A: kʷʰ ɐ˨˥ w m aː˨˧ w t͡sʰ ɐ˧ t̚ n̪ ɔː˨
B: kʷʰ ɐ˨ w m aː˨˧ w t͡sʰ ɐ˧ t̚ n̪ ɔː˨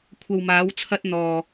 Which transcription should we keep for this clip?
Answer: B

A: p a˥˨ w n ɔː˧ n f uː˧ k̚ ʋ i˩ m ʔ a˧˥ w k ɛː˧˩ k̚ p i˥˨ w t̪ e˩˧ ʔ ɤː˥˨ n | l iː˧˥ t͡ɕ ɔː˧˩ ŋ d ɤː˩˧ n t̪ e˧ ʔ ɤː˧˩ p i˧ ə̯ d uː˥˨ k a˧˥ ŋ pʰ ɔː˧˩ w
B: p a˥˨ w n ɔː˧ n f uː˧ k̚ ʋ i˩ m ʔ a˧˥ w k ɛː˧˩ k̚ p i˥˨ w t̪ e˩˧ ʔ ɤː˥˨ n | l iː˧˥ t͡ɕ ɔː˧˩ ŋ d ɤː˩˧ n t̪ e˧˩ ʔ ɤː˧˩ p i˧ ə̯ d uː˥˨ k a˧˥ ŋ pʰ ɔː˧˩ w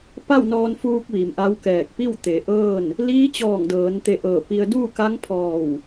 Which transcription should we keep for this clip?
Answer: B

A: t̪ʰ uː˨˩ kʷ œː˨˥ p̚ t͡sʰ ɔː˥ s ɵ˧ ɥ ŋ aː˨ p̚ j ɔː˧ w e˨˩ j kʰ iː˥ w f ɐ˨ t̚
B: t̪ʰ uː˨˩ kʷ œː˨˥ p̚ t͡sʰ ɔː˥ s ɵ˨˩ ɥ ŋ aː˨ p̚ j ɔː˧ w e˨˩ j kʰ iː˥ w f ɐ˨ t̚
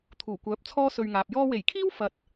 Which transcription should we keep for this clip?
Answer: A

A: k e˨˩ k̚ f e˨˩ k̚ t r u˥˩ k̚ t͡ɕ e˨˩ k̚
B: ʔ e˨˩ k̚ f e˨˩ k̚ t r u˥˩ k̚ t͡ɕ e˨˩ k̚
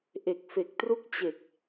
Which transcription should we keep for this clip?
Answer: B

